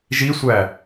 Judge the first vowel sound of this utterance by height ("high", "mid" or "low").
high